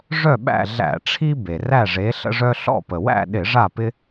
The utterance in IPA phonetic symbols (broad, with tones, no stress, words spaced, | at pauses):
ʐœ˥˨ɓæ̰˥˨ ɮæ̰˧˩˧ʈ͡ʂʰi˦ be˩ræ˥˨ʐe˨˥ ɬə̰˦ʐœ˦ɬɔ̰˥˨ pə˩wæ̰˥˨ɗɪ˧˩˧ ʐa˥˨pɪ˦